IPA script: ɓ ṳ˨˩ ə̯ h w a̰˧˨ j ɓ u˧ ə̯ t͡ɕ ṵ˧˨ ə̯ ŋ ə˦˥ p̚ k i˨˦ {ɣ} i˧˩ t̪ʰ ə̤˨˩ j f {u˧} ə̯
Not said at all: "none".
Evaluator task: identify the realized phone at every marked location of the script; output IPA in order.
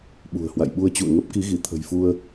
ɣ, u˧

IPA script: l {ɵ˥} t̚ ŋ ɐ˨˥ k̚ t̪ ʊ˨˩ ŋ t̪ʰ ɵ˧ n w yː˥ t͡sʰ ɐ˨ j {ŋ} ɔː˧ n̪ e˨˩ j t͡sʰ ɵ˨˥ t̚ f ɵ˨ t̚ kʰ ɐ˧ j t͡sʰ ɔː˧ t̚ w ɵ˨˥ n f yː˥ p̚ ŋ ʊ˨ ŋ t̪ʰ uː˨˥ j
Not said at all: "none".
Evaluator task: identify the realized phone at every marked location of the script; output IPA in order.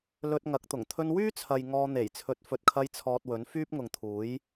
ɵ˧, ŋ

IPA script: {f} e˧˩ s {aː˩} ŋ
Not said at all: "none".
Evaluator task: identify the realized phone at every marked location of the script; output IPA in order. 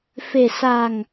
f, aː˧˩

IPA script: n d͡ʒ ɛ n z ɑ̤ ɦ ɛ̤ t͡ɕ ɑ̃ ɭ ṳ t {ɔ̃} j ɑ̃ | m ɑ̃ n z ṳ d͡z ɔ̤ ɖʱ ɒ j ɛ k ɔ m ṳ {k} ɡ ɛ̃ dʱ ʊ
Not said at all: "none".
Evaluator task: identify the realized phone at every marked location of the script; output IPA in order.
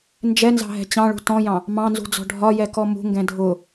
ɔ̃, ŋ

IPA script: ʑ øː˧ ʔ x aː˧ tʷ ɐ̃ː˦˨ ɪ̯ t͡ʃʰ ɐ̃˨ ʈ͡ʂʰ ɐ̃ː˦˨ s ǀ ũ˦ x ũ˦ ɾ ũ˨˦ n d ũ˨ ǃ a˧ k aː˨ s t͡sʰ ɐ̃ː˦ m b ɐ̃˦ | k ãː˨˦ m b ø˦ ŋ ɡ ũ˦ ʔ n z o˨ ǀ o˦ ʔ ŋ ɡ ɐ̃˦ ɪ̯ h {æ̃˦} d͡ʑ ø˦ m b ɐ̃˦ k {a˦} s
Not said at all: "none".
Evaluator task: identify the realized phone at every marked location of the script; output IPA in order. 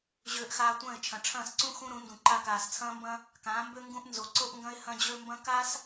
ɐ̃˦, a˦

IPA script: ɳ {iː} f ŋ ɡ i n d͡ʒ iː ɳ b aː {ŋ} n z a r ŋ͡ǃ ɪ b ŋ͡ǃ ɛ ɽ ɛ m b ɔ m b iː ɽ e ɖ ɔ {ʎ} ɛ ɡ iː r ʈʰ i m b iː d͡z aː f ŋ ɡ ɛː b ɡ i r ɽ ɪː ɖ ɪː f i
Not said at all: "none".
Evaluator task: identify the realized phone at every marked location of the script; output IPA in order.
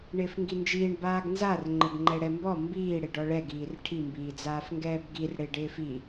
ɪː, ɡ, ɭ

